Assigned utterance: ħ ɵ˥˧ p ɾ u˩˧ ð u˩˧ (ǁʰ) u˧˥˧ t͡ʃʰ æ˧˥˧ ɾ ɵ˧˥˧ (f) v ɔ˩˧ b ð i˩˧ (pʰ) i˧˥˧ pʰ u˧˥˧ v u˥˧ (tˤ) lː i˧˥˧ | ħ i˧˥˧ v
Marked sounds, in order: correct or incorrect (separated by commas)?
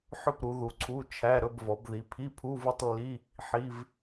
incorrect, incorrect, correct, correct